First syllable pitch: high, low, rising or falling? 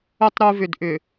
high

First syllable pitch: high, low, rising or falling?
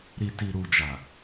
low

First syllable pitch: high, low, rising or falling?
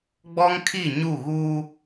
high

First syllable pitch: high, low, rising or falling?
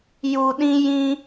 low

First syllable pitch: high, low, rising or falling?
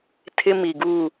high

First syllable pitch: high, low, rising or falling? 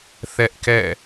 high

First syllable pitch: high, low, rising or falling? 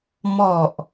low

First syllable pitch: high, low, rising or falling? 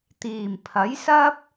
low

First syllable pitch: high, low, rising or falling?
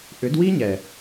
rising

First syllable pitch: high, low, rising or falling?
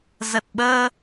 low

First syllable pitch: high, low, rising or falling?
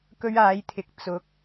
high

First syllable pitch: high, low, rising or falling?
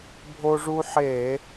high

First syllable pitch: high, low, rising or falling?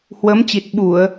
rising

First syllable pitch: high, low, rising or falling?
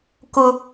high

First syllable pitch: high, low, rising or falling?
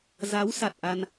rising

